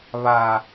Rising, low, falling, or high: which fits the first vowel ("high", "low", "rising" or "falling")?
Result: low